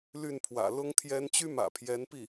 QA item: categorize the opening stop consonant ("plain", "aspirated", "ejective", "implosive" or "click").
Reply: aspirated